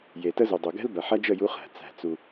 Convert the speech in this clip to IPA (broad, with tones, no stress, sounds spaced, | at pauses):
j e˨ t ə˦ z u˨ dˤ u˨ ɡ ɛ̤˦ l b ɐ˨ ħ ɐ˦ d͡ʒ ə˦˨ j u˦ χ æ̤˨ t͡s æ̤˦˨ t͡s u˦